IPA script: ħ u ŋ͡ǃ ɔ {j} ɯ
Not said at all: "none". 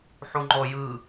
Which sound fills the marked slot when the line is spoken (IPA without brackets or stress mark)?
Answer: j